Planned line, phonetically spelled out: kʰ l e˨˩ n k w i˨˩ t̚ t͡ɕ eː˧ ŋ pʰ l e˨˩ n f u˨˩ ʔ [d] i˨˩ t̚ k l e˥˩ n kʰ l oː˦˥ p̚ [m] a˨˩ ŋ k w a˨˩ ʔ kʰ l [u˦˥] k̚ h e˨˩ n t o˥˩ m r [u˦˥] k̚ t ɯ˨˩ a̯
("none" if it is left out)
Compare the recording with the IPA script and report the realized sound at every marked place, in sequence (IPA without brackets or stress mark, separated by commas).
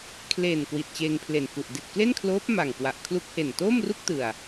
d, m, u˦˥, u˥˩